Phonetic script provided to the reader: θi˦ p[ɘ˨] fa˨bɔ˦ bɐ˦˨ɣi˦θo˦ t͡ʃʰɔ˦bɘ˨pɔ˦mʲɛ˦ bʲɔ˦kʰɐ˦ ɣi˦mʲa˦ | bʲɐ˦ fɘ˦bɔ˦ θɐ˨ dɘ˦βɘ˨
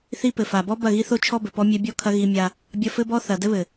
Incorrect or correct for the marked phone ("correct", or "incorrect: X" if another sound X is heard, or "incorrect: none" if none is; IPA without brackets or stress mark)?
correct